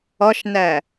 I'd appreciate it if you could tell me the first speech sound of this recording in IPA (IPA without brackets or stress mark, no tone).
ɒ